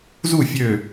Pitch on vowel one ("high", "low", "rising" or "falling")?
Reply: falling